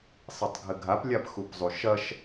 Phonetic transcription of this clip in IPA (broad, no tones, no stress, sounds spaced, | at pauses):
sˤ i tˤ ɡʱ ɘ ɡʱ a p lʲ a p x u p zˤ u ʃ ɐ ʃ